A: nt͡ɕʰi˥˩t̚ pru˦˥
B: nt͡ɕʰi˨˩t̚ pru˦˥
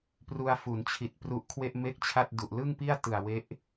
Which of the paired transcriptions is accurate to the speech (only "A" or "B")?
B